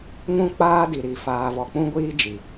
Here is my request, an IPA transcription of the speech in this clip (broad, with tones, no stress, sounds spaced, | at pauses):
ŋ ũ˦ k͡p aː˦ d i˨ ɾ i˨ f aː˨ v ɔ˨ k͡p ũ˦ ɡʷ iː˦ d͡ʒ i˨